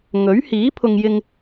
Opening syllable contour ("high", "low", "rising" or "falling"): rising